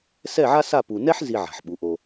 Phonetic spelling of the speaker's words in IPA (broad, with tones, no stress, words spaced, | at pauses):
sɛ˦˨ʕa˦sa˦˨ pu˨nɛ˦ħ zi˦ʕa̤˨ħɓu˨˦ʔo˧